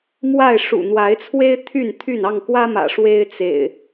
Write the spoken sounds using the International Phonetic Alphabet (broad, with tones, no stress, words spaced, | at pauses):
mwa˥˨ɪ̯ ʂṵ˨˩n̪wa˨˦ɪ̯t͡sʰwe˦ɪ̯ t̪ʰy˥˨n t̪ʰy˥˨n ɑ˥˨ŋkwä˦mä̰˨˩ ʂwe˦ɪ̯t͡sḛ˨˩ɪ̯